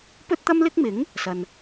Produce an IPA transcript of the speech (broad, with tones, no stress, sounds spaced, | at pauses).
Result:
p ɵ˥ t̚ t̪ ɐ˥ m l ɪ˥ k̚ m ɪ˨˥ ŋ | s ɐ˨ n